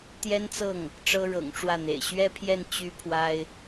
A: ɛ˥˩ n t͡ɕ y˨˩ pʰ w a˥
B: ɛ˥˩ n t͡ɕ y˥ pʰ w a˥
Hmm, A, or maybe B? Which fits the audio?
B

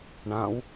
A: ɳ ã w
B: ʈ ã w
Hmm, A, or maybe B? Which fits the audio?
A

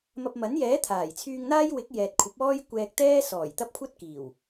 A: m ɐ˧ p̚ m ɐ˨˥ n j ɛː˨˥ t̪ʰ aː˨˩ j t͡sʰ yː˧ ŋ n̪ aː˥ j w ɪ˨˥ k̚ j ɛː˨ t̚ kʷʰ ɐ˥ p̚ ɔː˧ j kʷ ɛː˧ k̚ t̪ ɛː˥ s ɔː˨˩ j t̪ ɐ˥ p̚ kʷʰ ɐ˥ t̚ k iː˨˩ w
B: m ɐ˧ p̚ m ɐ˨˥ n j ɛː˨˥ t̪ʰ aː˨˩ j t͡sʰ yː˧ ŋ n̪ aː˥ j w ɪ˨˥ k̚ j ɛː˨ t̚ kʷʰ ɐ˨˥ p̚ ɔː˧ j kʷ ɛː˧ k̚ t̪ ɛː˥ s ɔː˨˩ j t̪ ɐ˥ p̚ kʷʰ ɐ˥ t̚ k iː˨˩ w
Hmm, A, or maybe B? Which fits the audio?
B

